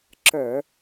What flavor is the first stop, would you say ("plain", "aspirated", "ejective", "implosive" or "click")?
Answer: click